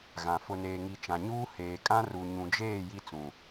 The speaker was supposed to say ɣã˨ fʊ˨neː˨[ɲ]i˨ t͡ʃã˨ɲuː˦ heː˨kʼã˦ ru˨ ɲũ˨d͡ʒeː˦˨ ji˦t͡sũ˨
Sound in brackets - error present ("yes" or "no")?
yes